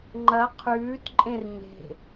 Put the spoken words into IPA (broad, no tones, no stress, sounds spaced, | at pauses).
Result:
ŋ͡ǃ ɐ qʰ ʉː t ǃʼ ẽ r ɲ e̤